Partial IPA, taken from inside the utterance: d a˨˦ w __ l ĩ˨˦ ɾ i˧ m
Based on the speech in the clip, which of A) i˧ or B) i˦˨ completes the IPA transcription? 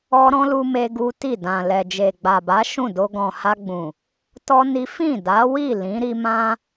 B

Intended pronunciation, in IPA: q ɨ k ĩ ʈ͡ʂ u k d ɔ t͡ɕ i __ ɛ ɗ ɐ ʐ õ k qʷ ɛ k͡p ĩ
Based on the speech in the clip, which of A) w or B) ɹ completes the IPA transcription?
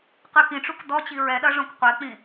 B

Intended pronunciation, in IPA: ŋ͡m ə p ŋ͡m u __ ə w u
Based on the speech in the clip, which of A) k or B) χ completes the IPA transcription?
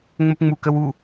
A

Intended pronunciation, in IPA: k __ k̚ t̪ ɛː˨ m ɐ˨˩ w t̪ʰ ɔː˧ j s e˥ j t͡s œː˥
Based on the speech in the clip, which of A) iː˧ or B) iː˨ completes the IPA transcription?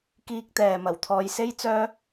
A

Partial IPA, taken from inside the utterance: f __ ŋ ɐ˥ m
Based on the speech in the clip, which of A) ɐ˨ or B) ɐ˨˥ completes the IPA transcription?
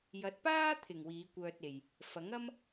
B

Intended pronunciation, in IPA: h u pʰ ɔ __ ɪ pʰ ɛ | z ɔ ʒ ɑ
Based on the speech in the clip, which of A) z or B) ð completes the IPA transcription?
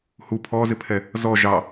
A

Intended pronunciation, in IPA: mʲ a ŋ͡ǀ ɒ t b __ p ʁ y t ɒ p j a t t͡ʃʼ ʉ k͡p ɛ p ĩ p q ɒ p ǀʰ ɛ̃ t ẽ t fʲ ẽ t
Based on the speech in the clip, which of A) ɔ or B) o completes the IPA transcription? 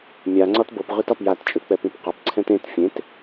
B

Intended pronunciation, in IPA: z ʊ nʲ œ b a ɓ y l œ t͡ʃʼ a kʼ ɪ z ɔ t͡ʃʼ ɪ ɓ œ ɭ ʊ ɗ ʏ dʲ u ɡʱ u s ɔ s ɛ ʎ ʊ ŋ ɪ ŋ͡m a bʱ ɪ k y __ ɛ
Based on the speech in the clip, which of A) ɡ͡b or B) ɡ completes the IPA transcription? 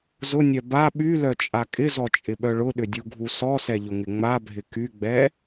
A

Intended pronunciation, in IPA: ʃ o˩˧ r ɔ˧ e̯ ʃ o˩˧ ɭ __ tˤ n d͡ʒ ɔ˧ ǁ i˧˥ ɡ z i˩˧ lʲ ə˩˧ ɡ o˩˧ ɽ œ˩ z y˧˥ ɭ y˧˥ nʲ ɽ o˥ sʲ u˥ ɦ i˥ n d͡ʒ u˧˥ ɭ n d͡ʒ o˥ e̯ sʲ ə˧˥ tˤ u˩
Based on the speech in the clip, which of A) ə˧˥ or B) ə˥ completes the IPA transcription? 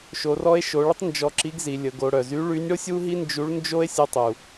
B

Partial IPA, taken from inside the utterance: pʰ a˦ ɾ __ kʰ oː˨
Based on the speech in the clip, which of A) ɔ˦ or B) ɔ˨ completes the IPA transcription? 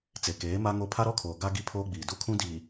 A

